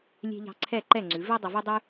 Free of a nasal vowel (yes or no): yes